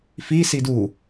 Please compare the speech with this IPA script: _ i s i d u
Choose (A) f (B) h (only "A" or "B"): A